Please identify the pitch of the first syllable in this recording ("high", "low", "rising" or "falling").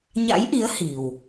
rising